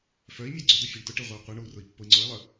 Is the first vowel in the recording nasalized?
no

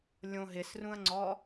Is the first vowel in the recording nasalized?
yes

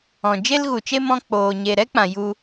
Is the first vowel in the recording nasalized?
yes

